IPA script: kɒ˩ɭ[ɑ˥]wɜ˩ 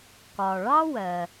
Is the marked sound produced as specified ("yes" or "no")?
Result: yes